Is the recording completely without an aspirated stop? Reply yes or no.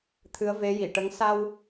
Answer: no